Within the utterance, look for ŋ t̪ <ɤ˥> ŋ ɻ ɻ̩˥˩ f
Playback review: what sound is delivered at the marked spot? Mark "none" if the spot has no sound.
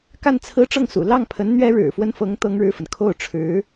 ɤ˥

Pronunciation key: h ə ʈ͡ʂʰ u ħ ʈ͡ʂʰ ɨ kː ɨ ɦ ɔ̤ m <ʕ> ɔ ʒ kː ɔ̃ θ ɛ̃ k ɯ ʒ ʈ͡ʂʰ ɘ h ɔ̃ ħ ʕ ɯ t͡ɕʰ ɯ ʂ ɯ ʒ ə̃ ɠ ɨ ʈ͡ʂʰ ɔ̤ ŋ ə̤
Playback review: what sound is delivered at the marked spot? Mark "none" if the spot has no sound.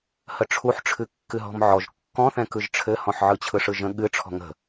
ʕ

